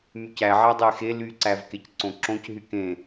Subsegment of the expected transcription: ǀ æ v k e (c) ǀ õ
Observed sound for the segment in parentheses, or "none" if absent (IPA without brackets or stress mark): c